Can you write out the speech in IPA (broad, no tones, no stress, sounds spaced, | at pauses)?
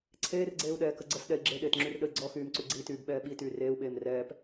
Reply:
ǀʰ eː r ɡ͡ǀ eː u̯ ɗ ɛː k ə ɡ͡ǀ ə s ɗ ɛ i̯ ɡ͡ǁ e ɗ eː t ŋ͡ǁ y r ɗ ə i̯ ɡ͡ǀ ɔ x yː m ǀ y ɡ͡ǀ i t yː b ɓ ɛː ɓ i t yː r eː u̯ ɓ eː m r ɛː p